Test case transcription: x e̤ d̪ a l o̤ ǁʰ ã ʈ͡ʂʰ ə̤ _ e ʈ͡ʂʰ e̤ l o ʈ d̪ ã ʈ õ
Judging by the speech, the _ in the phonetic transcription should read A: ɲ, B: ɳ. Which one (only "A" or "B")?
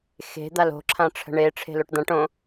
B